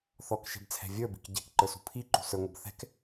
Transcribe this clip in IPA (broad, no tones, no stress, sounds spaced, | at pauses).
θ ɔ k ʃ ɛ̤ b t͡sʰ ɛ̤ vʲ ə˞ b i̤ k ɟ ɛ̤ k ǃ ə˞ s ṳ pʰ i ǃ ṳ s ə˞ ŋʷ ʌ b θ ɛ̤ k